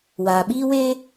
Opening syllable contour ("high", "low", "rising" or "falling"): low